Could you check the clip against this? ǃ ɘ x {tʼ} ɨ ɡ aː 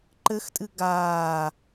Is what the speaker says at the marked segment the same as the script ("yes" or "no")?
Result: yes